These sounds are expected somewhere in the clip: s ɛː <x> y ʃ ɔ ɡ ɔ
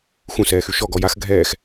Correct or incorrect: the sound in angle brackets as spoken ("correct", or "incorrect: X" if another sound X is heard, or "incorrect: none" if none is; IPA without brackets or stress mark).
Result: correct